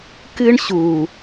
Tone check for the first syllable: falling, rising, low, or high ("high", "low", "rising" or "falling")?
high